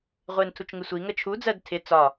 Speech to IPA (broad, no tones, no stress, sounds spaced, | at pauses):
ʁʷ ɪː n tʰ u t͡ʃ ŋ ɪ sʷ i ŋ ə t͡ʃʰ u d͡z ɜ d tʰ ɪ t͡s ɒ